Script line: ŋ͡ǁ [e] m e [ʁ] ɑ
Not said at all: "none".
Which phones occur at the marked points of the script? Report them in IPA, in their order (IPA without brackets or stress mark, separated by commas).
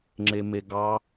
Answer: e, ɡ